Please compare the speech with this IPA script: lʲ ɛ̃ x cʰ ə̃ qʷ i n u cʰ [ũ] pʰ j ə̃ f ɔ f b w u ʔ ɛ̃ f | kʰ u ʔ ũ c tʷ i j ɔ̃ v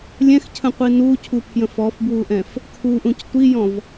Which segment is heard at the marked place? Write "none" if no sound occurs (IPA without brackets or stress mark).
u